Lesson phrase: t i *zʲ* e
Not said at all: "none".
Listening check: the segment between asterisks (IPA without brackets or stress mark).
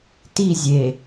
zʲ